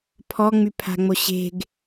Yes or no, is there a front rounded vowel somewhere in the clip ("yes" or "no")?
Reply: yes